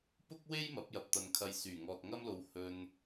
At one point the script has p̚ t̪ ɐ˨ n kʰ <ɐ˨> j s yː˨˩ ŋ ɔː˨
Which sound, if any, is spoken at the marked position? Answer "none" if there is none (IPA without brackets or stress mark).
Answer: ɐ˧